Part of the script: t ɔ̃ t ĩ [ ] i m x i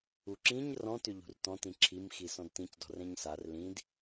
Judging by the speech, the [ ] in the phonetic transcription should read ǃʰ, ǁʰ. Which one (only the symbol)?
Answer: ǁʰ